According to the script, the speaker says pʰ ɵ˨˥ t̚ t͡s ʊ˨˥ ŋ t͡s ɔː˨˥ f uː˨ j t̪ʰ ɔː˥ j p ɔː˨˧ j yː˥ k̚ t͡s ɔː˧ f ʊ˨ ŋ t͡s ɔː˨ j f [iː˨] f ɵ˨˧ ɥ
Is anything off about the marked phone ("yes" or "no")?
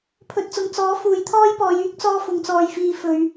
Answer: no